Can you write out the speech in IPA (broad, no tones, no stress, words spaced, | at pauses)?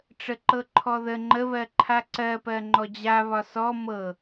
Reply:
ʈ͡ʂəǃɤǃʰɔðə ŋ͡ǃəβɜǃʰa ǀɜpɜ ŋ͡ǃɔd͡ʑaβɒ sɔ mɤ